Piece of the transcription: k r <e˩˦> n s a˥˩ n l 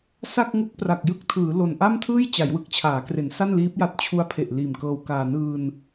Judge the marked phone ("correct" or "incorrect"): correct